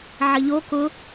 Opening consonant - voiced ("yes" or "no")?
yes